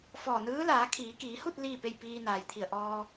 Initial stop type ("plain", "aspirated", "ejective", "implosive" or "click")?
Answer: aspirated